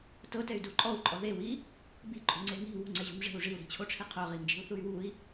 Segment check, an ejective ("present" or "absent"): present